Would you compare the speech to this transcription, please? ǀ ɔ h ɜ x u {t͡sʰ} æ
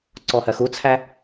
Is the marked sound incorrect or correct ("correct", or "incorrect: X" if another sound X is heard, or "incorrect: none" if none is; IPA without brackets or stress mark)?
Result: correct